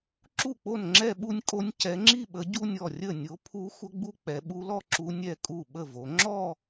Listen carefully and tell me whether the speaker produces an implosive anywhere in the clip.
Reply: yes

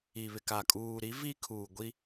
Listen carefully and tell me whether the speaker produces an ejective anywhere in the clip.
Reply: yes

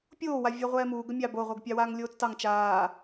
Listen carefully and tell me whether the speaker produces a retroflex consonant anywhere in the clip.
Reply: no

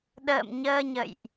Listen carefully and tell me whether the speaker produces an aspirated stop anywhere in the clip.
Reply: no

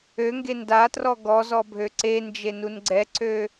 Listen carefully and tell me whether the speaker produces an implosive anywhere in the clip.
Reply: no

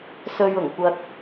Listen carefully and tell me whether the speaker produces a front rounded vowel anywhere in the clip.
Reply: no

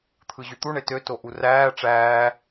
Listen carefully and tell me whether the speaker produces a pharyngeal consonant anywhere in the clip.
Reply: no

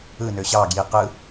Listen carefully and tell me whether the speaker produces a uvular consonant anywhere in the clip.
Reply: yes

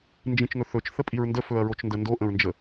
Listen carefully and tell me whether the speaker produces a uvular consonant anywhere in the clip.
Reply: no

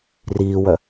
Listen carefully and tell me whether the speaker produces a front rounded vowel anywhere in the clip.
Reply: yes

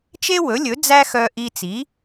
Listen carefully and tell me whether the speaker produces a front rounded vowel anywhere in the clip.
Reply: yes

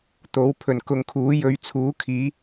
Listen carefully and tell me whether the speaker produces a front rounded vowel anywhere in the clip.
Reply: no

